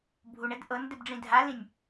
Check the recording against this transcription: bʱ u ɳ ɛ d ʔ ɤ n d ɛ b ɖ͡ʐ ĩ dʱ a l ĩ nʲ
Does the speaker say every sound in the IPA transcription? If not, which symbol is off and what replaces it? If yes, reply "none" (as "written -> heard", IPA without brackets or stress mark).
none